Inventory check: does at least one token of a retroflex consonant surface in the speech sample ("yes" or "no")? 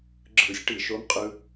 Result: yes